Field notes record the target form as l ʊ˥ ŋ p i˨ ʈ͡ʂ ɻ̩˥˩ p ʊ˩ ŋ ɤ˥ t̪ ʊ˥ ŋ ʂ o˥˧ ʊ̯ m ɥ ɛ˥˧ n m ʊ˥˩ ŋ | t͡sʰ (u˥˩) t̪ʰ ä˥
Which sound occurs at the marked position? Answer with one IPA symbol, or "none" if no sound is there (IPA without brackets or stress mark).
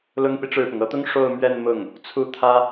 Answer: u˥˩